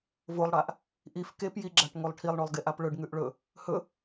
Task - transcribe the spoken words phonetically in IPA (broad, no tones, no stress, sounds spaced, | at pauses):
v o lˠ ɽ a ʔ | ʔ i f k e p j i ɡ͡ǁ a ʈ ŋ o lˠ ʈʰ i lˠ ɳ o lˠ ɡ e ʔ a p ɭ ɵ ɖ ŋ ʉ ʔ ɭ ɵ | h ɵ